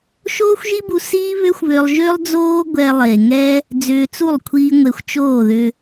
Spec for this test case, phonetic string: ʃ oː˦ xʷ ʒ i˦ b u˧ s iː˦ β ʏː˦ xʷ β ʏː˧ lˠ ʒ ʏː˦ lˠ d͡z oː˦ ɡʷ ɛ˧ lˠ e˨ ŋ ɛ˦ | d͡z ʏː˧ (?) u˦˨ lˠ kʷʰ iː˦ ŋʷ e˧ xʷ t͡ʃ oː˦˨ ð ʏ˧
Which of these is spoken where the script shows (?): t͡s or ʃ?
t͡s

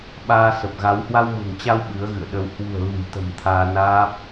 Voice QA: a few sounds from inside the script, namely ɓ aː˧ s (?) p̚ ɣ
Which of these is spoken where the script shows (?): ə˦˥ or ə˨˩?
ə˨˩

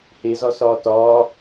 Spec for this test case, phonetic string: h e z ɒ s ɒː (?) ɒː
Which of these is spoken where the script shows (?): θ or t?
t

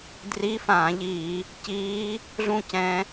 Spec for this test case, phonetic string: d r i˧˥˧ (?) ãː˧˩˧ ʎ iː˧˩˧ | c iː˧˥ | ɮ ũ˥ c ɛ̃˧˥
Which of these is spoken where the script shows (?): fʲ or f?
f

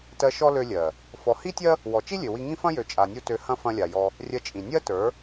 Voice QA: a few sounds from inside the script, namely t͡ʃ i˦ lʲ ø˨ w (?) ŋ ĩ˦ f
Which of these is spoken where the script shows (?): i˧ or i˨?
i˧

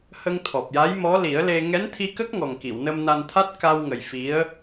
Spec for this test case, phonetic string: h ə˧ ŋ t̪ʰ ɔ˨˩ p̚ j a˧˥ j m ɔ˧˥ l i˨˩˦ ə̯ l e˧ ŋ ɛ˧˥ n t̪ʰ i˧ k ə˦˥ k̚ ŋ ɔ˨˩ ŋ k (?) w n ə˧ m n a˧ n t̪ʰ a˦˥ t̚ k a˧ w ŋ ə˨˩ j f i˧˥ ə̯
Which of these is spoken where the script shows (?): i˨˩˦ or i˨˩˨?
i˨˩˨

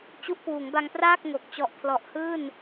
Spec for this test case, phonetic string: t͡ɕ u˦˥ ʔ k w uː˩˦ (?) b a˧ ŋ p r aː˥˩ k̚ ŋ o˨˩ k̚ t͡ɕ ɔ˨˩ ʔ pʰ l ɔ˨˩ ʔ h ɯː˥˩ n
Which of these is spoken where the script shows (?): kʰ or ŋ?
ŋ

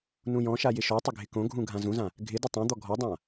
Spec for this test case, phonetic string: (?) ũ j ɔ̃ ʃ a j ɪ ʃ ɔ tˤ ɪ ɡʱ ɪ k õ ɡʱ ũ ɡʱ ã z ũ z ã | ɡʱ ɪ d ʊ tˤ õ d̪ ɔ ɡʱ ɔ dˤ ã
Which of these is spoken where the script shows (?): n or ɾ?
n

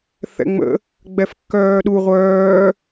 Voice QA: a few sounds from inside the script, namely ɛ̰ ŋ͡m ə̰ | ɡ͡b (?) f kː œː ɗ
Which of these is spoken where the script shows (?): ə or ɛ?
ɛ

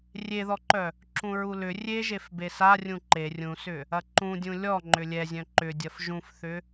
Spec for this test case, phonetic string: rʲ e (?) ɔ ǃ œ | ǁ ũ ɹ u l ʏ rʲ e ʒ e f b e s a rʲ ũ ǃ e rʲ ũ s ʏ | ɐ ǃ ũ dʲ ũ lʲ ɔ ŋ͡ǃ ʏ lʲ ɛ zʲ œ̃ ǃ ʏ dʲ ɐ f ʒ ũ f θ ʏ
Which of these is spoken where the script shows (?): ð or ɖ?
ð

